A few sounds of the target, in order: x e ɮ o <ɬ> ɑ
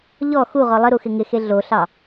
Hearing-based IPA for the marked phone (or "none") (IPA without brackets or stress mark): ɬ